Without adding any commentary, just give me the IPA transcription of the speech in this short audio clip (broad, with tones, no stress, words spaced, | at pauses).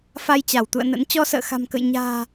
fa˧jt͡ɕa˧˩wt̪ṵ˧˨ə̯nə̰˧˥n t͡ɕɔ˧sə̰ː˧˨xa̤˨˩mkə̰˧˨j ɲa̤ː˨˩